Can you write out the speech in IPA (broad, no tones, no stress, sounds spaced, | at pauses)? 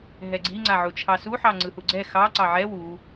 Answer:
ɦ ɛ ɡ͡ǀ i ŋ͡ǀ a ʕ u t͡ʃʰ ɑ s u ħ ɑ ŋ͡ǀ ɯ h u ɡ͡ǀ ɛ x ɑ ǀ ɑ ʕ ɛ w u